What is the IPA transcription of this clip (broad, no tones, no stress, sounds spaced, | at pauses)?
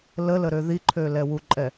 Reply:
l ə l ə ɾ ø ð i ǃʰ ø l ɛ w u ǃʼ ɛ